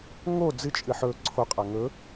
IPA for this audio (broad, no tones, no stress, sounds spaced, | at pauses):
ŋ o d͡z ɨ t͡ʃʼ ɨ ħ ɵ ǀʰ o qʼ a ŋ ɵ